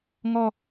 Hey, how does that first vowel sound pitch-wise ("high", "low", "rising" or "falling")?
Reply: low